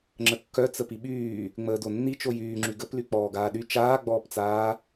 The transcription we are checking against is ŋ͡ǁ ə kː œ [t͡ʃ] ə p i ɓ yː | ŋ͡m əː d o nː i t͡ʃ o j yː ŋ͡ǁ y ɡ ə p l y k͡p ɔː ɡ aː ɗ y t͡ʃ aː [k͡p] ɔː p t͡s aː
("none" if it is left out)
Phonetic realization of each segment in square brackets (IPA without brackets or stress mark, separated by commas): t͡s, ɡ͡b